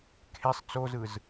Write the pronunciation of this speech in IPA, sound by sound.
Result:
kʰesˤ t͡sozɯz

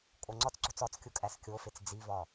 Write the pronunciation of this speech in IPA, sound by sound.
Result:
kʼoŋ͡ǀɒt͡sǀo̤t͡s ɒt͡skʲu kʼæskʲofet͡s d͡zivɒ

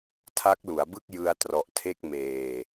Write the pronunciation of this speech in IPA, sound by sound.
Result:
tʰa˦˥k̚lu˩˦a̯bɯ˥˩k̚ jɯ˧a̯trɔ˨˩ʔtʰe˥˩k̚ meː˧

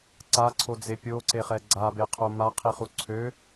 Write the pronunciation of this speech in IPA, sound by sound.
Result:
ǀaǀʰod͡ze pʲoǀeχɛ ɡ͡ǀabeqʰo maqʰiχu ǀʰø

